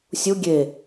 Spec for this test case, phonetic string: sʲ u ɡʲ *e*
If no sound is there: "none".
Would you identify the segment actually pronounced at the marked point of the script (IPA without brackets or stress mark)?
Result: e